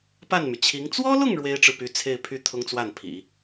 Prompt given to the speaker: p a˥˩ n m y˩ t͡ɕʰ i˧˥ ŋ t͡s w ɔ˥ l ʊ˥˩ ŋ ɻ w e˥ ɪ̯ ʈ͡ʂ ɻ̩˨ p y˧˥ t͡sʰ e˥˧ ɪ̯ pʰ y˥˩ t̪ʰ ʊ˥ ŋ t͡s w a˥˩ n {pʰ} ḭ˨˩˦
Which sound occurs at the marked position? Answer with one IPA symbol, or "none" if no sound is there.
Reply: pʰ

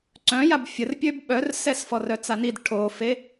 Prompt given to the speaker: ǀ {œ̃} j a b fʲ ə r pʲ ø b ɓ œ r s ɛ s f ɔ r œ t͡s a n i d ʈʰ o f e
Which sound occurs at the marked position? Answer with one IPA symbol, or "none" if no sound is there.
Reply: œ̃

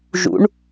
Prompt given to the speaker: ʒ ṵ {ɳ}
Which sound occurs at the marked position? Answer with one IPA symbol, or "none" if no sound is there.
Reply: ɳ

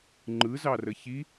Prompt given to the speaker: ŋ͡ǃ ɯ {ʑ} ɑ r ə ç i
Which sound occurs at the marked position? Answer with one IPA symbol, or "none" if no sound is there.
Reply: z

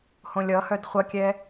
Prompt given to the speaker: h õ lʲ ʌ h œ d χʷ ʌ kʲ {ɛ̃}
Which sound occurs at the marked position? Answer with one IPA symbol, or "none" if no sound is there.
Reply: ɛ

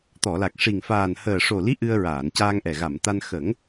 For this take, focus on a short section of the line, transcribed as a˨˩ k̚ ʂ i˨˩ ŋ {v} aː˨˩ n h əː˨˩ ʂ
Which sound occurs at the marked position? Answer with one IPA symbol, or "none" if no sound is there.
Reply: f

